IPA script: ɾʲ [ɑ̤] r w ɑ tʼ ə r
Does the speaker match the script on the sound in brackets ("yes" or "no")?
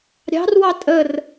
yes